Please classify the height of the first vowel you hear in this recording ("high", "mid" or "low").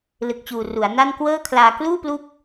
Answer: high